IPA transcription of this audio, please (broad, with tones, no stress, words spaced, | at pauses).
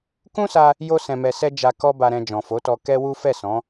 kũ˦sa˧ | jo˧sɛ̃˨mɛ˨sɛ˧ d͡ʒa˧ kɔ˦ba˧ɾɛ̃˧ d͡ʒɔ̃˨fo˨˦tɔ˧ kɛ˦wu˦ fɛ˦˨sɔ̃˨˦